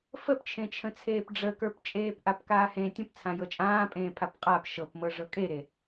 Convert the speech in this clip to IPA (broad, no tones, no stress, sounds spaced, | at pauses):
f ə p t͡ʃʰ ẽ t͡ʃʰ ə̃ t͡sʰ eː p ɖ͡ʐ ə k ə˞ p t͡ʃʼ eː p ʔ a p k aː h ẽ tʲ ə̃ p t͡sʰ ã j ɤ t͡ʃʼ ãː pʼ ẽː pʰ a p qʼ a p ʃ ɤ p m ɤ ʐ ɤ kʼ e ɾ e